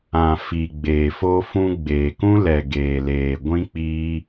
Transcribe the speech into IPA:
ã˨ f i˨ ɡ͡b eː˨ f o˦ f ũ˧ ɡ͡b eː˨ k ũ˦ l ɛ˨ ɡ eː˨ l eː˨ ɡʷ ĩ˦ k͡p iː˦

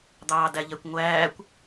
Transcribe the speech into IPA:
d̪ ɑː d æ ʎ ɛ kʷ ŋʷ æː kʷ

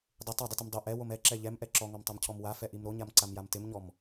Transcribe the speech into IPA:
dˤ ɪ tˤ a dˤ ɪ t ɪ m dˤ o ʔ ɛ w o m ɛ ǁ ɛ ʎ ɛ m ʔ ɛ ǁ ɔ ŋ ɔ m tˤ a m cʰ ɔ m w a f ɛ ʔ i m ɾ o ɲ a m ǀ a m j a m t ɪ m ɲ ɔ m

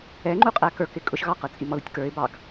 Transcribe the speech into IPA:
ɛ ŋ͡ǃ u qʼ æ k ə˞ k ɪ kʼ ʊ ʃ ɣ ɑ q ə˞ t͡sʼ i m ɔ ð ʊ tʲ k ə˞ ɪ̯ b ɑ ɡ

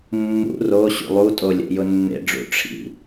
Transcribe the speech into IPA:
mː ṵ r o ɕ ṵ lˠ u tʼ o lʲ ɛ̰ j ʊ nː ḛ ɖ͡ʐ ṵ ʈ͡ʂʰ ḭ

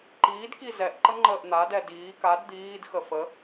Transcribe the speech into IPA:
ǃ iː d k i z ɛ ʔ ǃ ə ŋ͡ǃ əː ʔ n̪ a d ɛ d iː k a d d̪ iː d x ə f ə

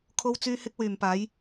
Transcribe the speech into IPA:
kʰ o˥ w t͡s yː˥ h ɪ˥ k̚ w yː˨ m p aː˨˥ j

